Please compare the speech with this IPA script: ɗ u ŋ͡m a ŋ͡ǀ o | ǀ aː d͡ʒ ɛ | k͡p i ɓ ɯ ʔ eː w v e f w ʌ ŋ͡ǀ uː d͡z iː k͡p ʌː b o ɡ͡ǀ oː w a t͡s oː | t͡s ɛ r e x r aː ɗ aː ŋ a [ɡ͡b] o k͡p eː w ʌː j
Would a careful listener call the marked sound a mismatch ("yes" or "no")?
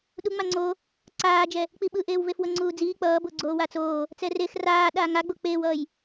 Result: no